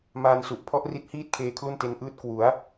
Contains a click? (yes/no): no